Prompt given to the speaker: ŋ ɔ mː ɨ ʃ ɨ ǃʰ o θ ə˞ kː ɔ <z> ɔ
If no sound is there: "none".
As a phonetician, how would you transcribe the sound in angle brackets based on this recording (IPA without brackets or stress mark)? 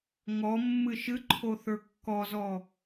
z